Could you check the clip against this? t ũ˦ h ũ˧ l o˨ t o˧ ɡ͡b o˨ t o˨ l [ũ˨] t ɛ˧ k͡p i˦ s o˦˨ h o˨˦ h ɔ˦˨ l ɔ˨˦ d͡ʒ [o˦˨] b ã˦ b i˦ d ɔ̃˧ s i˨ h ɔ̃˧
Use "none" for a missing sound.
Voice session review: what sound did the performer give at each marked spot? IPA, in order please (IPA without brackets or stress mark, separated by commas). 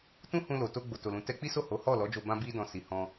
ũ˨, o˧